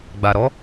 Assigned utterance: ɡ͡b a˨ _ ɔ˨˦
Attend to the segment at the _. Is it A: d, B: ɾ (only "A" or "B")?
B